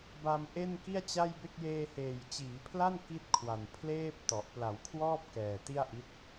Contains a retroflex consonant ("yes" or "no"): no